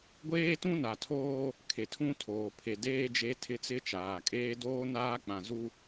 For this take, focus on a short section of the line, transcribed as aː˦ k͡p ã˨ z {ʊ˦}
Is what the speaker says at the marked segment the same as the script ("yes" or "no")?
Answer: no